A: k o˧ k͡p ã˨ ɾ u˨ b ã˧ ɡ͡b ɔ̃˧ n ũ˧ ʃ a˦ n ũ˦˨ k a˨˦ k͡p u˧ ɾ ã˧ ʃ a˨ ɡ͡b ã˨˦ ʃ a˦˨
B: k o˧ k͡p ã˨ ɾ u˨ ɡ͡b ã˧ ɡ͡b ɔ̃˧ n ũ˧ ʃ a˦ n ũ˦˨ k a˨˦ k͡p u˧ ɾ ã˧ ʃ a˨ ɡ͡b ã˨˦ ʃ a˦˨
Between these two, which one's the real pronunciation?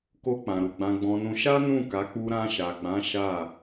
B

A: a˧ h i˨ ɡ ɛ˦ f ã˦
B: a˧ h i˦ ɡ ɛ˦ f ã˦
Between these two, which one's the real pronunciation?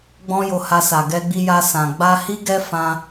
B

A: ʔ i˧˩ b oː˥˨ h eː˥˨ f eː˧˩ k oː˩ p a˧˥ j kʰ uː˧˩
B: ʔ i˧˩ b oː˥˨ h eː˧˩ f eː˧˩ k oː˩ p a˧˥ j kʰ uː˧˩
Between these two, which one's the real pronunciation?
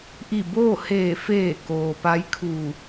B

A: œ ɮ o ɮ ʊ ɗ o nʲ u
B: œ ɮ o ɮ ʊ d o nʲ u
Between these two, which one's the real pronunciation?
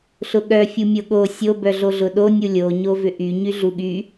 A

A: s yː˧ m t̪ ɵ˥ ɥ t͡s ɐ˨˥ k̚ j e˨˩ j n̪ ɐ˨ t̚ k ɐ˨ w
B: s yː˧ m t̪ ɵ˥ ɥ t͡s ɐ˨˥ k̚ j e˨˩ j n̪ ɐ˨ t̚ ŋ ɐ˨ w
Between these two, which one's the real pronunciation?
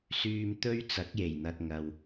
B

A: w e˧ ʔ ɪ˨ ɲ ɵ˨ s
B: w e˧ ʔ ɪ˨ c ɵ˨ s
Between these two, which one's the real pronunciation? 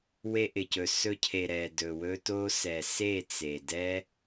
B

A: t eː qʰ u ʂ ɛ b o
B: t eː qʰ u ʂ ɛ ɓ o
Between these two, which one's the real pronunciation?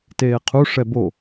A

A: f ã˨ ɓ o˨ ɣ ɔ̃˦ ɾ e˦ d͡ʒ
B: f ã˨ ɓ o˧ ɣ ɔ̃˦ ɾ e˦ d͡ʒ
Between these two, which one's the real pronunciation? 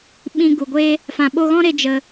B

